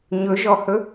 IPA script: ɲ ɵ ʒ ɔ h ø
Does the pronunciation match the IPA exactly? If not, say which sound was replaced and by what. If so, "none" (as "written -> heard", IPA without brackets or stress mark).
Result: ø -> ɵ